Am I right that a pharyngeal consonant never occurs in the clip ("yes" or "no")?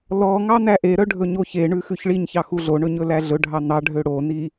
yes